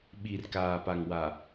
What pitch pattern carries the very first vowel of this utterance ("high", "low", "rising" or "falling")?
low